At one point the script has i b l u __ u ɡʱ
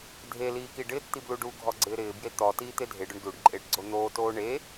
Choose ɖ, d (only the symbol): ɖ